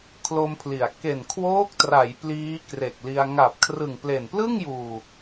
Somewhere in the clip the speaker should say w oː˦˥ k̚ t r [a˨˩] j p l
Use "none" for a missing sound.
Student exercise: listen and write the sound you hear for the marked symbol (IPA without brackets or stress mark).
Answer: a˩˦